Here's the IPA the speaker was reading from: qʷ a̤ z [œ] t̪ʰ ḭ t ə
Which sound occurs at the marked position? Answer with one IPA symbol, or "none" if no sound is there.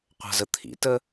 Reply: ə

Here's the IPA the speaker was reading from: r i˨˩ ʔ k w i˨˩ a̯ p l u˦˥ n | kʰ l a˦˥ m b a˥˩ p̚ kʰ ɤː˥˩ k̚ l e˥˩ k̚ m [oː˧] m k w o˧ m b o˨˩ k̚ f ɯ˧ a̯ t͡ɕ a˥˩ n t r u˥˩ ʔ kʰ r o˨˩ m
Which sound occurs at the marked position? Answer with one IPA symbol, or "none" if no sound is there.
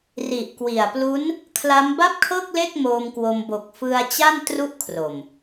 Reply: oː˧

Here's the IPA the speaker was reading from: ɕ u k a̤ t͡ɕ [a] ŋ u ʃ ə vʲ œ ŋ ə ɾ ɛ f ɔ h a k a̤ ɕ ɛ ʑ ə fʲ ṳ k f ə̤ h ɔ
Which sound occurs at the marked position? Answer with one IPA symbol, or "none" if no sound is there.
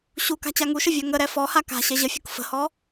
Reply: a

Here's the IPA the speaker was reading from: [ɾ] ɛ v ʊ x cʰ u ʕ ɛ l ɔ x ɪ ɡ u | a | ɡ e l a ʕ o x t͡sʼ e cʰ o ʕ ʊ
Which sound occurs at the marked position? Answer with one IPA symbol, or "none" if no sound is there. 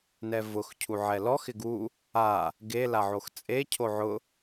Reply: n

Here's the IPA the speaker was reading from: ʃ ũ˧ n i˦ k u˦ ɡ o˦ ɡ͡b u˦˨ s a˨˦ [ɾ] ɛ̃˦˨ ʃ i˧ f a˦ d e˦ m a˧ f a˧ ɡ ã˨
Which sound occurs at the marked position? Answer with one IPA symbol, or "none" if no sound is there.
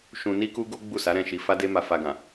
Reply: ɾ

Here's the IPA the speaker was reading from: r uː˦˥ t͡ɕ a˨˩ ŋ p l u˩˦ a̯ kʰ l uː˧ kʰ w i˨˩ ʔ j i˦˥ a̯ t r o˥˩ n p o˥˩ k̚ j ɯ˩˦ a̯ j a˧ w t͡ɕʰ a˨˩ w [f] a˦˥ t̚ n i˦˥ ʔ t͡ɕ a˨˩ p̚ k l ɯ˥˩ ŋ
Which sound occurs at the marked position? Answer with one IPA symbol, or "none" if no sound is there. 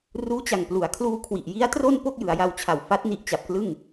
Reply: f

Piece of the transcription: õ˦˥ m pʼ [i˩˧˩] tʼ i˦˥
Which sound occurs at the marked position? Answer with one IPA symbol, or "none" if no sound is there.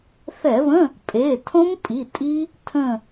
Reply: i˩˧˩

